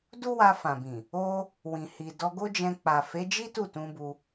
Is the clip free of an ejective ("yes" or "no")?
yes